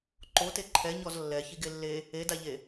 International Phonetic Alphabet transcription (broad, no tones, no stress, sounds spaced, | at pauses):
ǃ o t e ǃʰ ɛ ɲ ɔ z lː ɛ ç i ɡ e lː e | e d a ʎ e